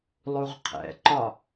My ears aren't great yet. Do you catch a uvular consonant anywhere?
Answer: yes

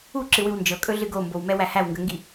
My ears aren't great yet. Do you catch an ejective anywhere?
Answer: yes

